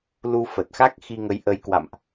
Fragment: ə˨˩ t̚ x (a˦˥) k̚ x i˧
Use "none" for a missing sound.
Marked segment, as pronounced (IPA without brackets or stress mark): a˦˥